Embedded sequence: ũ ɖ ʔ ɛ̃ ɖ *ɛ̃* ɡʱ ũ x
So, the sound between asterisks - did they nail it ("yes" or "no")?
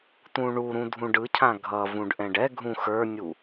no